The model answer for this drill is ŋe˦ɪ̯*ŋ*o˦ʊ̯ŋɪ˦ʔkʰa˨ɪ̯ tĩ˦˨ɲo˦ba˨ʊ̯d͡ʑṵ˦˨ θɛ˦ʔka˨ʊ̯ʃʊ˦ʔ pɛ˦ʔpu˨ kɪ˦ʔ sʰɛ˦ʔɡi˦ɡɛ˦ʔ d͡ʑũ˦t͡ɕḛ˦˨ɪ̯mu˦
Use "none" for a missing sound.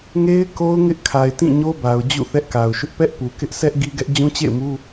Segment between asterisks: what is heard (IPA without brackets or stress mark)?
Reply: k